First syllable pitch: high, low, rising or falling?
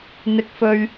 high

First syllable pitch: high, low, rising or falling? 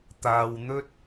low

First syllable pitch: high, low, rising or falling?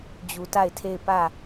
low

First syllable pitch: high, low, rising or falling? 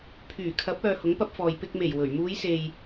low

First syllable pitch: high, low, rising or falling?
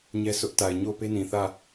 high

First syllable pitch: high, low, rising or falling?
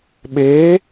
rising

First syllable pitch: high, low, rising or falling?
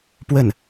falling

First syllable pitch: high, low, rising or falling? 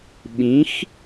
rising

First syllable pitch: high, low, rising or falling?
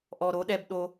low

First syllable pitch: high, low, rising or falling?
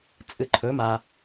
low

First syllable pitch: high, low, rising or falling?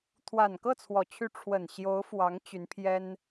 low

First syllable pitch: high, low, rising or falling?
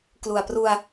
low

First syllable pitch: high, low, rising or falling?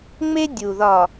high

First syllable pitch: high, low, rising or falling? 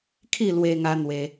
falling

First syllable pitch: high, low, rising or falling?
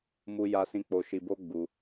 high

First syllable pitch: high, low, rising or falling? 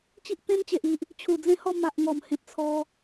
high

